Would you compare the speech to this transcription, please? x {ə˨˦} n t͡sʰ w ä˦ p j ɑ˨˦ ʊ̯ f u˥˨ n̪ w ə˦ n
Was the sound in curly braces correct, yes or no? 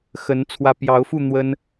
yes